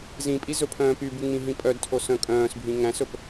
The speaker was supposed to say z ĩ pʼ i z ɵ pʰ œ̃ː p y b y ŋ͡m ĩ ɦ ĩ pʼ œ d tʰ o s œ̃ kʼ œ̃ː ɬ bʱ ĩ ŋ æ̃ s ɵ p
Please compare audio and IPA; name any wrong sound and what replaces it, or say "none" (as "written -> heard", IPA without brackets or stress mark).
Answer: ɬ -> s